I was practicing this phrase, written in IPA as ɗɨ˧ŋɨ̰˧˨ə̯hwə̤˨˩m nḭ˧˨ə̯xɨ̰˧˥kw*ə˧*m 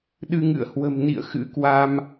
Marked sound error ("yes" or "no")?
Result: yes